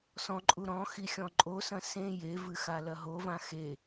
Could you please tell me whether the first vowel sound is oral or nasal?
nasal